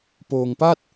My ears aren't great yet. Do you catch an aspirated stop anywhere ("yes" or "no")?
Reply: no